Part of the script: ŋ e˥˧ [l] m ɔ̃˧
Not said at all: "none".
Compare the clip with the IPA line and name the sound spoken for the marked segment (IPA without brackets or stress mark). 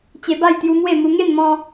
n